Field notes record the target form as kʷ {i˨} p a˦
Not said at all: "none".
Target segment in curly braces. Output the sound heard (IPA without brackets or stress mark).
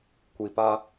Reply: i˨